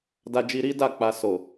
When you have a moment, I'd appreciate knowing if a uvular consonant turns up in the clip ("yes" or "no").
no